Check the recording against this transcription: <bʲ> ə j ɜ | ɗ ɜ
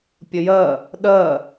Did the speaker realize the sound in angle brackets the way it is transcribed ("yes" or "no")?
no